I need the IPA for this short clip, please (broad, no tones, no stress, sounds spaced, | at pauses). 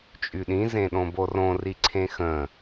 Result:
t͡ʃʼ y ɗ ĩ z ẽ ɗ õ b o r õ r i ǀʰ ẽ x ə̃